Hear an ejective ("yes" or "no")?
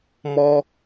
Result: no